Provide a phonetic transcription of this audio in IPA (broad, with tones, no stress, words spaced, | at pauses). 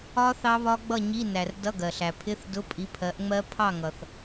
ɒ˦˥ θɑ˦˥βɒ˦˥ɡ͡bʌ˥˨ ɲi˧˥˧ næ˨r dʌ˧˥˧ɡɜ˨ɬæ˨ pʰɪ˧˥˧θ dʊ˧˥˧pʼi˨˥pʰɜ˨˥ʔŋ͡mɜ˦˥ pʰɑ˥˨ŋʌ˨θ